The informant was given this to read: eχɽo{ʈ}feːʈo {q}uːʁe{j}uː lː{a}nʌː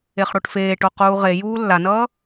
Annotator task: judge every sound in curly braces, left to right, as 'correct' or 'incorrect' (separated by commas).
correct, correct, correct, correct